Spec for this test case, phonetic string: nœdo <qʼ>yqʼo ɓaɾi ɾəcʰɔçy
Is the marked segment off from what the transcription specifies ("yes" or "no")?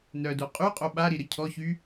no